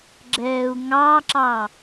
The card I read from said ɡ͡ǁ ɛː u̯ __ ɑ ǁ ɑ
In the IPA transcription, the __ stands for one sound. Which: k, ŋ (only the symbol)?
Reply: ŋ